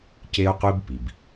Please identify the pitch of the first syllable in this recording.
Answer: high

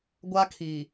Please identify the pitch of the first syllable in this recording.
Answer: high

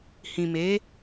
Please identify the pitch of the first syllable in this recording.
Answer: low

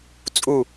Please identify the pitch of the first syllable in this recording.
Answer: falling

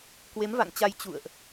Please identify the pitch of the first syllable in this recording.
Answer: rising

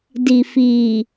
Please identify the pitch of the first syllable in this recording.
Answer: low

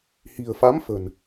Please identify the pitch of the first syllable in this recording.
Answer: low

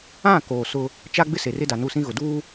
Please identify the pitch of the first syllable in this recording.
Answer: falling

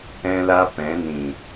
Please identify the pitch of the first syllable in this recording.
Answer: high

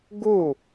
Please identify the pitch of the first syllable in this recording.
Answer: falling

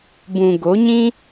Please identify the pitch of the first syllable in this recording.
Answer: low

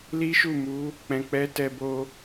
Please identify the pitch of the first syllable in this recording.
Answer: high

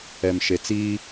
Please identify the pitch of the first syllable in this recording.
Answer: low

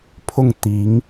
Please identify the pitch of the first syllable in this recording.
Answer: falling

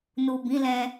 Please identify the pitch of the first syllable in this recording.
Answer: low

